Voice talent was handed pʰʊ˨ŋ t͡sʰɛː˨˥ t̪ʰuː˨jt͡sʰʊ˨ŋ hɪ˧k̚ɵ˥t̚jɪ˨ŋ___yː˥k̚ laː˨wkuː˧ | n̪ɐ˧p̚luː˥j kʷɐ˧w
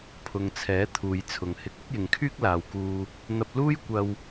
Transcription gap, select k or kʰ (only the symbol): kʰ